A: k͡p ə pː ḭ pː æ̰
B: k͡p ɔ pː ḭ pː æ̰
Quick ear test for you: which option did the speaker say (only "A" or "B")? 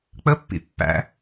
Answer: A